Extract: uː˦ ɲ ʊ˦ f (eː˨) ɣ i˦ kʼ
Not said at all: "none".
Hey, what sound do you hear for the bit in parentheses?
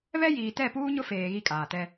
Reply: eː˨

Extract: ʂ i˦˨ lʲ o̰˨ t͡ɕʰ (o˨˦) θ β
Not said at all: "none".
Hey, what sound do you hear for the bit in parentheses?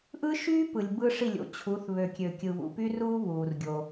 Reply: u˨˦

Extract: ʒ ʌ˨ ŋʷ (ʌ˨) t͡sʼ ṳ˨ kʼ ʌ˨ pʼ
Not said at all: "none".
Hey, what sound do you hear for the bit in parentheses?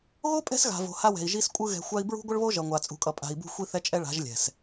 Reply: a˨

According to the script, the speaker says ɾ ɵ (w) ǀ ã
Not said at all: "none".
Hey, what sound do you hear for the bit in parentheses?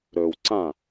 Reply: w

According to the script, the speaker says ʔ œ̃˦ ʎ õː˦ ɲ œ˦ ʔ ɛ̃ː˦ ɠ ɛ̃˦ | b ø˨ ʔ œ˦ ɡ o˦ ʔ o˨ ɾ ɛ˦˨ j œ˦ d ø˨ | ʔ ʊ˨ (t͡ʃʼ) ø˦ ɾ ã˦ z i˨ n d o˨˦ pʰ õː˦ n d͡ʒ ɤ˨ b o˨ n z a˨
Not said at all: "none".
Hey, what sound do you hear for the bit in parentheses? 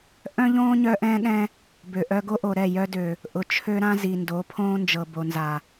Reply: t͡ʃʰ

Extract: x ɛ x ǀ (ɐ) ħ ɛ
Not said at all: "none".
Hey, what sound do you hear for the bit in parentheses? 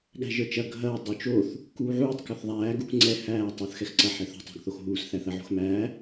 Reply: ɐ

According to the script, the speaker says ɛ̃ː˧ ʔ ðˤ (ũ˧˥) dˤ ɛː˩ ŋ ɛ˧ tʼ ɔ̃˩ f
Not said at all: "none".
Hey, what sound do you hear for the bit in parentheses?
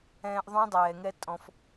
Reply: ũ˧˥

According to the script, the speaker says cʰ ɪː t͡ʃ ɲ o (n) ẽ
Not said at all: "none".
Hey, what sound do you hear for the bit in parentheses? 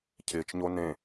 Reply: n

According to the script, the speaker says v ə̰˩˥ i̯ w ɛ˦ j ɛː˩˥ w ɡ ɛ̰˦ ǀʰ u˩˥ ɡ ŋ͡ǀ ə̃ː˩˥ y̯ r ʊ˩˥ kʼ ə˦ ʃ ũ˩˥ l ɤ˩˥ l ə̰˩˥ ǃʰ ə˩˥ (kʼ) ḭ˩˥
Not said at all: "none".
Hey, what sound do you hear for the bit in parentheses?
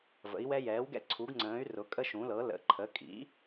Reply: kʼ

